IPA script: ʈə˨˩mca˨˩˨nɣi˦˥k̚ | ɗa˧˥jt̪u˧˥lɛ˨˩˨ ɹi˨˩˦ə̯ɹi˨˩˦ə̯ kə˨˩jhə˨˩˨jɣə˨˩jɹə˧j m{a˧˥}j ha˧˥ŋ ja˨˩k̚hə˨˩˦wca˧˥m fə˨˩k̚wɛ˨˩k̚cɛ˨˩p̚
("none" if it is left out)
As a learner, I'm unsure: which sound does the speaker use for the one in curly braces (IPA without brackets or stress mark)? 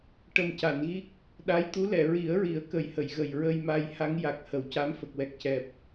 a˧